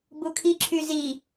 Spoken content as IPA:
bukʰiǁʰy zi

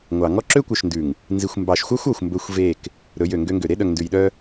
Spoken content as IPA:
ŋʷɑ˨ ŋɔ˦ǁø˦kʷœ˨ʃndʉ˨ŋ | nzi˨xʷmbɑ˨ʃxʷɑ˦xʷ ɔ˨xʷmbɵ˦xʷve˦˨k | ɾɵ˨˦jø˨ŋɡø˦ŋɡø˨ ɾe˦ɗœ˨ŋndʉ˨jɗœ˦

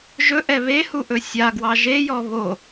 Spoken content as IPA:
ʒɵʔɛ βehuʔɵ sʲaɡwɑ ʒejɔ βo

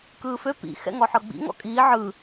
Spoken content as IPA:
kɯːfø pḭ xɛ̰ŋɔħɤɡ͡bḭ ŋɔ̰kʼiː ʕɯ

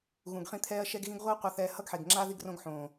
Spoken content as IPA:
ɣũ˨ɡχĩ˧ t̪ʰɛː˧ɐ̯ʃɛ˧ɡɣĩ˧ɡ ʁʷɯː˦qʷa˧θɛː˧ hʌ˦ɡħe˨ɡŋ͡ǁa˦ ði˧ɡrõ˧ɡħõː˨

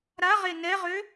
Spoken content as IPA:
ɾaʁe nɛʁø

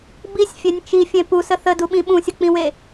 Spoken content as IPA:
bisʲfʲenʲ t͡ʃifʲẽ pusə θəduɓĩ ɓũsʲək͡pĩwe

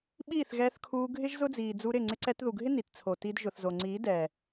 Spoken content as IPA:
ɓiː˦˨θɣɛː˧θkʰuː˧ ɡʱɪ˦ʒ zʊ˦d͡ziː˨d͡zu˧ ɾɪ˦˨ ŋ͡ǀɪ˧ǀɛ˧tðu˨ɡʱɪ˦ ni˨tt͡sʰo˨ ti˧d ʒʊ˨θzo˨ ŋ͡ǀiː˨˦dɛː˨

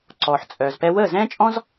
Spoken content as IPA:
ǀɔː˨ħt͡sʼœː˨zpɛ˦ wəː˦˨zɛ̃ː˦t͡ʃʼɔ̃˦z

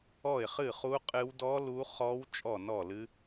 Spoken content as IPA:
ɔ˥˩ɪ̯χɨ˥˩χu˦˥ qʼɨ˦˥w dɔ˦˥ lu˦˥ χɔ˦˥w t͡ʃʼɔ˥˩nɔ˥˩lɨ˦˥

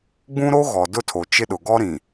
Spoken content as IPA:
ɡ͡bũ˦ɾo˦ɣɔ˨ dʊ˦tʰo˨t͡ʃɪ˦ɗʊ˨ ɡɔ˦ɾĩ˨

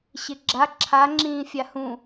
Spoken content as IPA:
ɕɪɡ͡ǁa ǁʰa ŋ͡ǁĩːfʲahũ

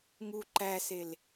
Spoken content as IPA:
ŋu ǃæsel

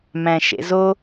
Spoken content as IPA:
mæ̃ʃḛzo

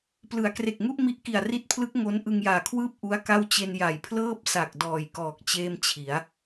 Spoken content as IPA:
plɯ˩˦a̯kre˨˩k̚ŋu˥˩ʔ mi˦˥ʔki˨˩a̯ri˦˥t̚pʰlɯ˦˥k̚ ŋo˦˥n ʔɯ˧ŋjaː˨˩kʰwɯː˥˩p̚ ʔu˦˥a̯ka˥˩w t͡ɕe˧n ja˨˩jpʰlɤː˥˩p̚sa˨˩k̚ dɔː˨˩jkɔː˨˩k̚ t͡ɕeː˥˩mt͡ɕʰi˩˦a̯

